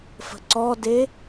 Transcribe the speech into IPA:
f ə̤ ǀ ɔ d e

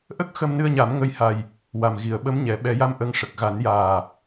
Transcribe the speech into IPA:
ʔ ə˦˥ k̚ x ə˧ m n ɨ˧ ə̯ ɲ a˨˩˦ m ŋ ə˧ j h a˨˩ j | w a˨˩ m ɣ i˨˩˨ ə̯ ɓ ə˧˥ m ɲ ɛ˨˩˦ ɓ ɛ˨˩˦ j a˧ m ʔ ə˧˥ ŋ ʂ ə˨˩ k̚ ɣ a˨˩˦ n j aː˨˩

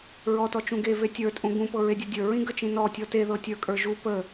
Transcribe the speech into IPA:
ɹ ɔ t ɔ t͡ʃ ũ ɡ e v e tʲ ə˞ tʼ ũ ɡ ũ p ɤ ɹ e dʲ ɤ dʲ ə˞ ɹ ĩ ɡ ə t͡ʃ ĩ n ɔ tʲ ɔ t e ð ɤ tʲ ə˞ kʼ ə˞ ʒ u p ə

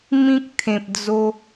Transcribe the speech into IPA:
m ĩ˦ k̚ t̪ʰ ẽ˨ p̚ d͡z o˧

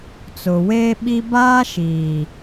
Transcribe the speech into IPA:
t͡s ʊ˨ w e˦ ɓ i˦ b aː˦ ʃ iː˨

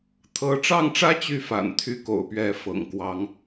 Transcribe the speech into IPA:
t̪ʰ ɤ˧˥ ʈ͡ʂ ɑ˥˩ ŋ ʈ͡ʂ ä˥ t͡ɕ y˥˩ f a̰˨˩ n t̪ʰ y˥˩ k o̰˨˩ ʊ̯ p ɥ ɛ˧˥ f ɤ̰˨˩ ŋ k w ɑ˧˥ ŋ

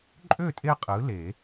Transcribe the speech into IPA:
ǃʼ ø˥˨ tʼ e˦ qʼ ɯ˨˥ l e˨˩˦

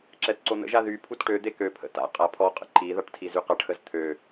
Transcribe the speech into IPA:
ǁ ɛ t ǀ o n̪ ə̰ ʒ a ð y pʰ u t ʈ ø d̪ e k ø pʰ ə̰ t a̰ qʼ a pʰ ɔ qʼ ə̰ ǃ i ð a ʈ tʰ i z y q a ʈ x ə z t̪ʰ ø

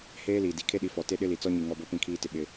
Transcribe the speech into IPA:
h eː˦ l iː˨ d i˨ kʰ e˦ ɗ i˨˦ f ɔ˨ t e˦ ɗ ɪ˦ l i˨ t͡s ɔ˦ ɲ i˨ ŋ ɔ˦ b o˦ p ĩ˦˨ kʰ iː˦ t ɪ˦ ɓ ɪ˦

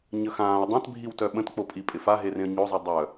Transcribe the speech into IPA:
ɲ ə x ãː ʊ̯ dˤ ã t bʱ i w t œ ɓ ə̃ t k͡p o pʼ i pʼ ɪ f a ɦ e r ẽ ə̯ ɲ o zˤ i dˤ œ

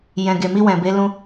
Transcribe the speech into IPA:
j ɛ̃˨ ɡ e˨ m i˧ w ɛ̃˨ b e˨˦ l ũ˧

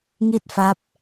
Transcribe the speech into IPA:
ŋ i˥˩ t̚ f a˦˥ p̚

